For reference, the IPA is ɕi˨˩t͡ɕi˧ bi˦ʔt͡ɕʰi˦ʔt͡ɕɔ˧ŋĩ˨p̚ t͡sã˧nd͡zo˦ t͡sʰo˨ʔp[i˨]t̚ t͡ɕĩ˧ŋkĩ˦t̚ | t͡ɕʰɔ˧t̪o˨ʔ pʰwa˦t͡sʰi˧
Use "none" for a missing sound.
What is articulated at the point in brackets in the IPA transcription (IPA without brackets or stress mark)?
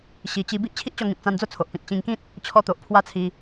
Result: ĩ˨